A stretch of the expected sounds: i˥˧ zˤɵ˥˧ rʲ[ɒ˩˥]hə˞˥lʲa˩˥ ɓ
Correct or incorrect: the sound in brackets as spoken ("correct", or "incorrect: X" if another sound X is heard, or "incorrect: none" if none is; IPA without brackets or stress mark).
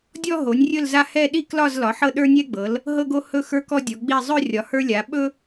correct